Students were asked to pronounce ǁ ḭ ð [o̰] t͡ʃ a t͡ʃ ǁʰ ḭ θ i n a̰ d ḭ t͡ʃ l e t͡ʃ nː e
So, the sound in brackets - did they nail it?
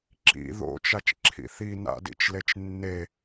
yes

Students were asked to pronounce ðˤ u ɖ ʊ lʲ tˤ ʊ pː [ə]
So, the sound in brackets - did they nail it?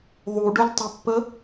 yes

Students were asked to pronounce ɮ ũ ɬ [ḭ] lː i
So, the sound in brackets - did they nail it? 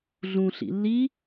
yes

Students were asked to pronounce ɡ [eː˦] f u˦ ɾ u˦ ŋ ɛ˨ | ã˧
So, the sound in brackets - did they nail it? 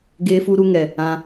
yes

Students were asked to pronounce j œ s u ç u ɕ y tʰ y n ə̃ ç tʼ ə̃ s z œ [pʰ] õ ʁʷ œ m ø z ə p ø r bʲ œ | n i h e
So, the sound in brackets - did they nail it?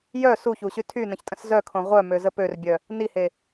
no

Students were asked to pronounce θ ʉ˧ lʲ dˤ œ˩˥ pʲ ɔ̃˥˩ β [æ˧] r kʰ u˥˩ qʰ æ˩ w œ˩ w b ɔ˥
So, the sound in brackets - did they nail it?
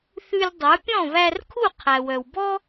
yes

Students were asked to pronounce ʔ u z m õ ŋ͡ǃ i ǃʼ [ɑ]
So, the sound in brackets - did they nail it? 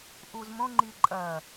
no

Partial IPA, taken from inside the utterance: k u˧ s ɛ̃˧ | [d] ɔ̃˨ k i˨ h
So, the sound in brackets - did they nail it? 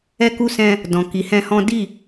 yes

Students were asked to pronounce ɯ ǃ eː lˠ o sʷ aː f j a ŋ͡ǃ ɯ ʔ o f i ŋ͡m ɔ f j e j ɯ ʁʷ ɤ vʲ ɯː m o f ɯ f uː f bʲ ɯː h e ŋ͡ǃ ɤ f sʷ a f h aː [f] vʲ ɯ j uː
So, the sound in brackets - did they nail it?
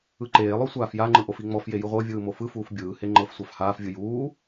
yes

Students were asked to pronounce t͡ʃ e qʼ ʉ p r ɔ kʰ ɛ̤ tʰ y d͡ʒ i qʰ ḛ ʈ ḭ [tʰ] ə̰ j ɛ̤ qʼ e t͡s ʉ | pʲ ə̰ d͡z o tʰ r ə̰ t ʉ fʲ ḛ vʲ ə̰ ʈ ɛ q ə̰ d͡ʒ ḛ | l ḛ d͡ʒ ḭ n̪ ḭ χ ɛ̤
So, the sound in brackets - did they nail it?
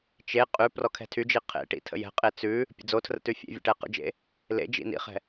yes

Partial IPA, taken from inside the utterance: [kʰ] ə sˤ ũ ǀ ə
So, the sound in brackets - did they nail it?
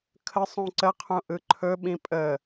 yes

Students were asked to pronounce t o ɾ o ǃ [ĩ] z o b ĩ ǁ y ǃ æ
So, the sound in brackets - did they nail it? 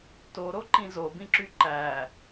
yes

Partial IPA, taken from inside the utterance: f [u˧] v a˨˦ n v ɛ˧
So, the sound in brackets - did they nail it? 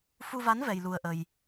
yes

